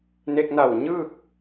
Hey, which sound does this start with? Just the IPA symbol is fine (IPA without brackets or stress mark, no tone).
n